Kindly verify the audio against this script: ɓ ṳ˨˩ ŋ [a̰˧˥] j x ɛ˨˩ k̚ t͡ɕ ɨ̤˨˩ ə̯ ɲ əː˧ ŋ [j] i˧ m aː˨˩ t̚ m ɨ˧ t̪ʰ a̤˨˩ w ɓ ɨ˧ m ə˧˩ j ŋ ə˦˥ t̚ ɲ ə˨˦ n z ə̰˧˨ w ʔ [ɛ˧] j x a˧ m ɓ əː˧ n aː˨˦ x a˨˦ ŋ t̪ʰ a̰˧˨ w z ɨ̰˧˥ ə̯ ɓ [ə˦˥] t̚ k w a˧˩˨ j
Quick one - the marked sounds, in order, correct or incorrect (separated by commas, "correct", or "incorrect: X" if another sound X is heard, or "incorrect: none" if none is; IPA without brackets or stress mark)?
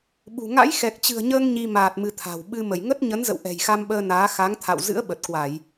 correct, incorrect: ɲ, incorrect: ɛ̤˨˩, incorrect: ə˨˩